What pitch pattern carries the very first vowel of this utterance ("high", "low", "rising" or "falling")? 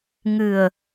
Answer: low